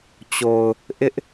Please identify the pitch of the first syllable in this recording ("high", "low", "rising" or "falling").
low